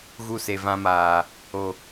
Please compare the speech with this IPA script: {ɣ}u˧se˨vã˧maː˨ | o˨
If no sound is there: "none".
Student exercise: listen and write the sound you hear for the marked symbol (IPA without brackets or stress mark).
ɣ